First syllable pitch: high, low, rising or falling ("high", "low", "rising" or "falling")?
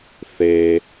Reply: low